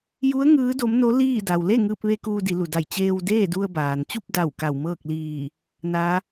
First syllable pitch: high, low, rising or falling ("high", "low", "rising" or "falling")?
rising